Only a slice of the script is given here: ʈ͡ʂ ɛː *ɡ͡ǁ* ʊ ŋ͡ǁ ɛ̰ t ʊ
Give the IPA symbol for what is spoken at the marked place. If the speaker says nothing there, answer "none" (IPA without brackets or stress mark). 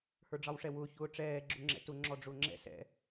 ɡ͡ǁ